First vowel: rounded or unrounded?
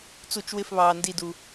rounded